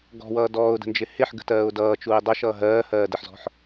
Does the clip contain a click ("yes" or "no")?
no